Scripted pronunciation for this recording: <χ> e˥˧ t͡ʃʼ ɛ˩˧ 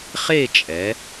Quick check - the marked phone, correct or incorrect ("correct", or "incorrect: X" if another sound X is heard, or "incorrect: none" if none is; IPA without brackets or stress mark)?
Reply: correct